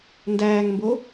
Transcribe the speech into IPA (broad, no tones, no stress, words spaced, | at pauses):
ndæːŋmbo